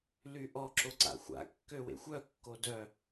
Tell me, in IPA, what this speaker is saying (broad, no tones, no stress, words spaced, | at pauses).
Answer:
lyʔɔ ǁoǀa̰xʷa̰ kːøwḛxʷœ kːodœ